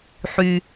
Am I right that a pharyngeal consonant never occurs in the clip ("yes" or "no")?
no